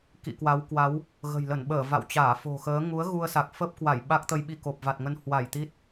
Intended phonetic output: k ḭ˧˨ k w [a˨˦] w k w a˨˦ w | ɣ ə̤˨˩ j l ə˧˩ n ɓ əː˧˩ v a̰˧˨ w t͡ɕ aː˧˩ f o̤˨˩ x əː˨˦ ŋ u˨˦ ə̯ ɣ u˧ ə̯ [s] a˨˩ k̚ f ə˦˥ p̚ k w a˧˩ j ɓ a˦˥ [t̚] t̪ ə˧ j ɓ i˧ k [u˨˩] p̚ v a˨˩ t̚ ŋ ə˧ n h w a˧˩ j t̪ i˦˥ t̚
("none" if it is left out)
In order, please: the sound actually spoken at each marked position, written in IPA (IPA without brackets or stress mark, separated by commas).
a˨˦, s, k̚, o˨˩